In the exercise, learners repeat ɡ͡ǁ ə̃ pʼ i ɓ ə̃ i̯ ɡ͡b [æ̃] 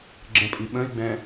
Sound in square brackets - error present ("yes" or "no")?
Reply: yes